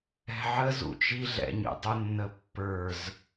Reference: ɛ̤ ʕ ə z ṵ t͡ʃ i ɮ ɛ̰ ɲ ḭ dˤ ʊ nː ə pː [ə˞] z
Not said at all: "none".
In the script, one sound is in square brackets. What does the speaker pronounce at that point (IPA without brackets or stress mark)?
ə˞